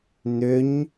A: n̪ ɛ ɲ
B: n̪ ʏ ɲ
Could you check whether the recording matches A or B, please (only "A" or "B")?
B